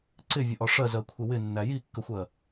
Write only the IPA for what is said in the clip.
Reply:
ǀɪvʲəʔɒ ʂɜzɜkʷʰɪ wɪnːæ jikːəxʷɜ

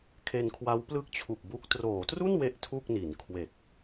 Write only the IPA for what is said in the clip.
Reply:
kʰe˧nkʰwa˦˥w plɯ˥˩k̚t͡ɕʰu˨˩k̚bu˦˥k̚ troː˩˦tru˥˩n we˥˩ʔtʰu˥˩k̚ni˩˦n kʰwe˨˩k̚

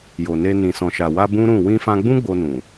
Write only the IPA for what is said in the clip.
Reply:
jo˨ne˧ nĩ˨sɔ̃˨ʃa˨wa˧ bũ˦ɾũ˦˨ wĩ˧fã˧ ɡ͡bũ˦ ɡ͡bo˧nũ˨

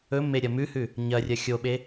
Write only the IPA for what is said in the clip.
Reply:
ɵmːeɾʲɐ mʉhʉ | ɲɐrʲɐ xʲoɓe

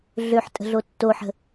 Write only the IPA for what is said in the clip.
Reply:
ɮøħ tʼə̤ɮotːoħə̤

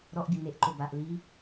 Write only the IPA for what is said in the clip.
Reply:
ɾɔʔbʲo neʔǃo baʔ li

